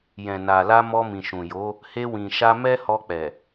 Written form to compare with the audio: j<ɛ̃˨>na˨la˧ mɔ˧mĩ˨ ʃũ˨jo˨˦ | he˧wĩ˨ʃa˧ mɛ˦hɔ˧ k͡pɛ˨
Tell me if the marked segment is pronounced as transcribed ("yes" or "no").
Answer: yes